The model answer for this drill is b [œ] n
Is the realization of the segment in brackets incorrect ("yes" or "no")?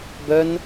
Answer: no